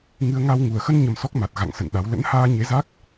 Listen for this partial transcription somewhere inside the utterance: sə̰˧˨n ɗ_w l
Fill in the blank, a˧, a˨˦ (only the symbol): a˨˦